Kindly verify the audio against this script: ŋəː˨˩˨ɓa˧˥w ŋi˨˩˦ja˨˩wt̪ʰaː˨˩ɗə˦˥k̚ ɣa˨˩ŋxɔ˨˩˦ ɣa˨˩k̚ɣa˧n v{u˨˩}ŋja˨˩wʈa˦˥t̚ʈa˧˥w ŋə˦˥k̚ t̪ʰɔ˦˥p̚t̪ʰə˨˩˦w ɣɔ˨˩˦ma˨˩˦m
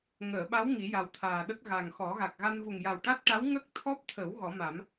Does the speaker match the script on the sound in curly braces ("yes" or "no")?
yes